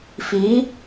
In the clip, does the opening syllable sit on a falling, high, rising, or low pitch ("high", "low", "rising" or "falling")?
rising